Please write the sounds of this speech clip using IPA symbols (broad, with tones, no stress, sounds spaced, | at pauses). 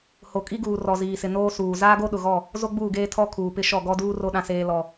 h o˨ kʼ i˦ ɡ uː˨ r ɔ˨ z iː˨ s ɪ˨ n oː˦ s uː˨ z aː˦ ɡ o˦ ɗ ʊ˨ ɣ ɔ˦˨ | z o˦ ɡ͡b uː˦˨ ɡ eː˦ tʰ ɔ˦ kʰ uː˨ p ɪ˦ ʃ ɔ˦˨ ɡ ɔ˦ d uː˦ r o˦ ɗ ã˦ s eː˦ l ɔ˦